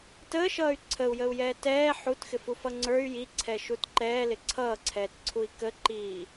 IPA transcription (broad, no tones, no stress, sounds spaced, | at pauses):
t əː ʃ ʌː y̯ ǀʰ ə u̯ j ə u̯ j ɛː t ɛː ħ u t x ɪ f u f ʌ ŋ͡ǀ ə˞ y̯ j i ǀʰ ɛ ʃ u t ǃ ɛː l ɪ ǀʰ ʌː ǀʰ ɛː t ǀʰ u i̯ k ə ǃ iː